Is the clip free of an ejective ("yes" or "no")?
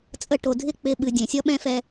no